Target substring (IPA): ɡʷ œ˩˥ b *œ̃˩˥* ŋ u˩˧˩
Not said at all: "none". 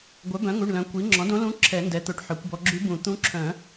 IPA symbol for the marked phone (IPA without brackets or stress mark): œ̃˩˥